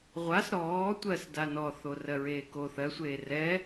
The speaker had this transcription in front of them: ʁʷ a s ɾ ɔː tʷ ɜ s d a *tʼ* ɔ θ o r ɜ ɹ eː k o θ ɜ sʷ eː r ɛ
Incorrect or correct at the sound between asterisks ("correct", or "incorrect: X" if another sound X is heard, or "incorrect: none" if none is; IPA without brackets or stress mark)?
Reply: incorrect: n